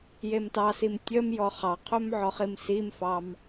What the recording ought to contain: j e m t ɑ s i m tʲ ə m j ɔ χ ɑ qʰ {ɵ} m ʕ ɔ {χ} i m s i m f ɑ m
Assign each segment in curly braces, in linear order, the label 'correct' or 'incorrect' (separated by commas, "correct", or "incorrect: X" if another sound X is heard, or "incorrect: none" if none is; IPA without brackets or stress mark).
correct, correct